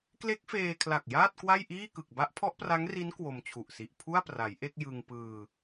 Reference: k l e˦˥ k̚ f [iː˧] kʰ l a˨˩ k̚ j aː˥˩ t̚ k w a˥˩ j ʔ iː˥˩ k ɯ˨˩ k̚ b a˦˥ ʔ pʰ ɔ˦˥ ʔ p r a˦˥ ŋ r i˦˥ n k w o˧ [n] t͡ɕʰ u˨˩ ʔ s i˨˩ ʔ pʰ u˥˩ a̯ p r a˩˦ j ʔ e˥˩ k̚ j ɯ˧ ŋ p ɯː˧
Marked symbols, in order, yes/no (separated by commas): no, no